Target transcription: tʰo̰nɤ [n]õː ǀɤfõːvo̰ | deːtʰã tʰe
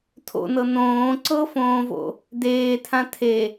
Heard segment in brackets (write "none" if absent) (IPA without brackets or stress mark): n